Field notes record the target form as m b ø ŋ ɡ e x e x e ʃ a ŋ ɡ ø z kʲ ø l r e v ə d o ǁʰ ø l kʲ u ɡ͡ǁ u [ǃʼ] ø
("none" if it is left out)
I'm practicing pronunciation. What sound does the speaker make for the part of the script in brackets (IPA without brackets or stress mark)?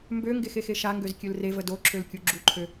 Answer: ǃʰ